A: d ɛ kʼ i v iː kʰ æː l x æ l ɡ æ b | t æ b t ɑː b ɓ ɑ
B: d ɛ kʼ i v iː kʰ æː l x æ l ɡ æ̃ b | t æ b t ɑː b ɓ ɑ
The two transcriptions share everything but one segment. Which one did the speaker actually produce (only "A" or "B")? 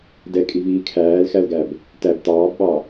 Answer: A